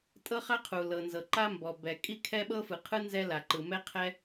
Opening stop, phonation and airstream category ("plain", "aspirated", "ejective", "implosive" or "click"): ejective